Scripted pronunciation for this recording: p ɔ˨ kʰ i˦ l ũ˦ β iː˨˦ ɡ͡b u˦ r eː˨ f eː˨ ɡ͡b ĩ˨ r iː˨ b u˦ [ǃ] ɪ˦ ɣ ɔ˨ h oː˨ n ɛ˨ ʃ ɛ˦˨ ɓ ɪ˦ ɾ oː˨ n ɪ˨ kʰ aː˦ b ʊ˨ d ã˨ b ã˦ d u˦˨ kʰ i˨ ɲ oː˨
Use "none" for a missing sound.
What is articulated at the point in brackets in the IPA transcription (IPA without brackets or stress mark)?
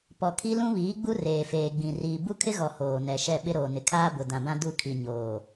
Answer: kʰ